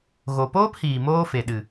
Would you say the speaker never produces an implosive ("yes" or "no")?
no